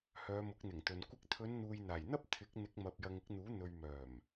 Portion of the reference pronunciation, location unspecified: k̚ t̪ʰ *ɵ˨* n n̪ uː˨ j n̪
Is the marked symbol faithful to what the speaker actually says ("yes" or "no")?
no